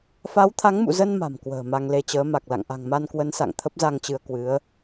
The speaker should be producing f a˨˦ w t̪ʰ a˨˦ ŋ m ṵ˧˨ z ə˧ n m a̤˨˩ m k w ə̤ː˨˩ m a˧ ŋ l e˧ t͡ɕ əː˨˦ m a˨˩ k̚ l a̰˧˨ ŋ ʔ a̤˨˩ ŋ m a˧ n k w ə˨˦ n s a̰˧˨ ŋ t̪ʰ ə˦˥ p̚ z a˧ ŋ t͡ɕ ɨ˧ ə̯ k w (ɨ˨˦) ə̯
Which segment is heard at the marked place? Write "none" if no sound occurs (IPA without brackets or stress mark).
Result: ɨ˨˦